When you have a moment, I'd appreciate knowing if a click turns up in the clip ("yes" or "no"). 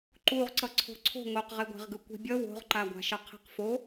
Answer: yes